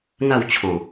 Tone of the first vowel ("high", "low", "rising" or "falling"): falling